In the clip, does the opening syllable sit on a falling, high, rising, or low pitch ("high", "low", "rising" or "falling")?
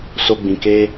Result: high